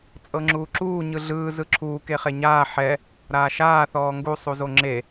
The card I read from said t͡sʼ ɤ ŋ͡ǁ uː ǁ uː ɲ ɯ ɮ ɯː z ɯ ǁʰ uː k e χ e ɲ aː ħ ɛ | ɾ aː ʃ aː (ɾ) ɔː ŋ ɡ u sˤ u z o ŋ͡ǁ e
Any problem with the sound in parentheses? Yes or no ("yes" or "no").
yes